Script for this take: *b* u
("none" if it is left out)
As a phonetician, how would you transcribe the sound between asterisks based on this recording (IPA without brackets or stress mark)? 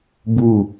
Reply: b